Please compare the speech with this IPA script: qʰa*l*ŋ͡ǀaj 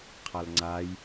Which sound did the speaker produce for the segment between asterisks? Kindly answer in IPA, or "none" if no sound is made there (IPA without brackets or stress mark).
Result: l